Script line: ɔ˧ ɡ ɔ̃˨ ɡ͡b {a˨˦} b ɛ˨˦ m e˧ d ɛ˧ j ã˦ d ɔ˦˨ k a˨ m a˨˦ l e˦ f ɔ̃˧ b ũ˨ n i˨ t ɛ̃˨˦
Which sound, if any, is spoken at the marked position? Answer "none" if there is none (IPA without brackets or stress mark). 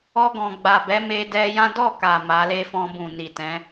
a˨